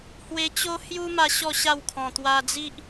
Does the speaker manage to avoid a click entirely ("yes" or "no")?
yes